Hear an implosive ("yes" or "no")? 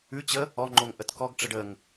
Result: no